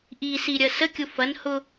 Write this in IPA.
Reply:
ʔ i s i ɾʲ ɐ s ə kʲ ʊ f ɐ n h ʊ

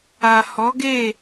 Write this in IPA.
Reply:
a˨ h ɔ˨˦ ɡ e˦˨

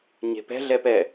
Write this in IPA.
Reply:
ɲ e̤ p ɛ̤ ɮ ɛ p ɛ

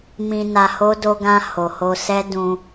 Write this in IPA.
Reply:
m ĩ˧ n a˧ h o˦ d o˧ ɡ ã˧ h o˨ h o˧ s ɛ˦ d ũ˧

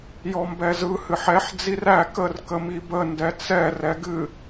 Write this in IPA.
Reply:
j ɔ m b ɛ z ɯ h ɨ ħ ɛ ħ d͡z i r æ k ə r k ə m i b ə n d ɛ t͡s ɛ r ɛ ɡ ɨ

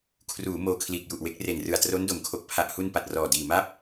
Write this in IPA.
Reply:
kʰ r uː˩˦ m oː˧ kʰ l iː˨˩ k̚ j u˨˩ ʔ w e˦˥ k̚ r e˨˩ n r ɯ˨˩ a̯ t r o˦˥ n d o˩˦ m kʰ o˨˩ k̚ pʰ a˨˩ ʔ h u˧ n p a˨˩ t̚ r ɔː˨˩ d iː˨˩ m a˥˩ p̚

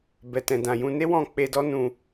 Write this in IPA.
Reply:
b ɛ˨ t ɛ̃˨ d ã˨ j ũ˧ n e˦ w ɔ̃˦˨ k͡p e˧ d ɔ˦ n ũ˧

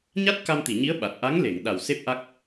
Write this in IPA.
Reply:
ɲ a˦˥ t̚ k a˧ m t̪ i˨˩˨ ɲ i˧˥ ə̯ ɓ a˨˩ t̚ ʔ a˧˥ ŋ l e˨˩˨ ŋ ɗ a˨˩ w s e˦˥ p̚ ʔ a˦˥ k̚

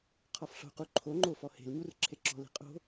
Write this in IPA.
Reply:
qʰ ɔ f ɬ o̤ q u ǃʰ o ŋ͡ǃ o f ɔ h e̤ l ɲ u r ǁʰ e ǁ ɔ̤ l i̤ qʼ o̤

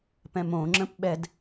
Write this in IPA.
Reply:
p ɛ̃ m õ ŋ͡ǁ ə̃ p ɓ ɛ d

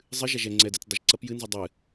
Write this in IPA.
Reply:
zˤ ɨ ʒ a ʒ ɛ ŋ͡ǀ ɛ d ɛ t͡s dˤ ɨ ʒ ǀ ɐ p j ɨ n z i dˤ ɨ

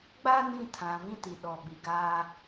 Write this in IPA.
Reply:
ɡ͡b a˦ n ĩ˦ tʰ ã˨ v ĩ˦ t i˨ ɗ ɔ˨ ɓ i˨ ɡ aː˦

